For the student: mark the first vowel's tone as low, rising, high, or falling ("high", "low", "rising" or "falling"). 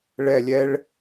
falling